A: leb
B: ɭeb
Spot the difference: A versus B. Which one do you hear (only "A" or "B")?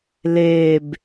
A